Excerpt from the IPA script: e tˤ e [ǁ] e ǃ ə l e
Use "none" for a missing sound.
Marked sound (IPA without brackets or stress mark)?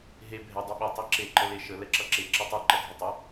ǁ